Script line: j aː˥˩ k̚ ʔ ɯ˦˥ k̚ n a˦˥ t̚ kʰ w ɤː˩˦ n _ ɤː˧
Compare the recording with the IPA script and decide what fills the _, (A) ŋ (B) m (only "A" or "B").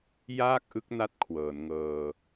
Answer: A